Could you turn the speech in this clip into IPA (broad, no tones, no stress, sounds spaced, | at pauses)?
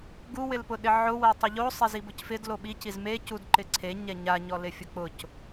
ɡ u w ɪ l p ʊ ɗ ɪ ʕ ʊ w ɛ tˤ ʊ ʎ o sˤ e z i b ʊ c f ɪ d l o ɓ i c i z m e c u d ǃ ɪ ǀʰ e ɲ ɛ ɲ a ɲ ɔ l ɪ fʲ ʊ k͡p ʊ c